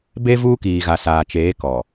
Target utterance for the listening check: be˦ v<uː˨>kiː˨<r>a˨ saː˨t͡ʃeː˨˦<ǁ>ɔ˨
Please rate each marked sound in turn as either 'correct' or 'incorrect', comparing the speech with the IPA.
incorrect, incorrect, incorrect

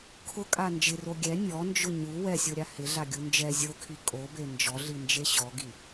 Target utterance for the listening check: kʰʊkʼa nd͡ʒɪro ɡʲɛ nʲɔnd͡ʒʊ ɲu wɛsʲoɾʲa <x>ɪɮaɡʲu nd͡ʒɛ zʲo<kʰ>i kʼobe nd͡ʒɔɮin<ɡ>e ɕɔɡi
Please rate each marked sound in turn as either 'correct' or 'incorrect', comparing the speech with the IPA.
incorrect, correct, incorrect

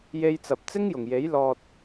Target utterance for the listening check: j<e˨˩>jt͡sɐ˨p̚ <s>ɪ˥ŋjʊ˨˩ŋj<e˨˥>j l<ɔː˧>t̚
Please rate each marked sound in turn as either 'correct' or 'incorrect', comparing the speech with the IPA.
incorrect, incorrect, correct, correct

